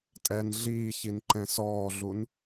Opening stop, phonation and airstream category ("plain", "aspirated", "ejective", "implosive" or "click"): ejective